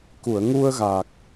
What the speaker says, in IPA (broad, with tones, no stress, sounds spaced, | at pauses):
k u˨˩˨ ə̯ ŋ u˧ ə̯ ɣ a˨˩ k̚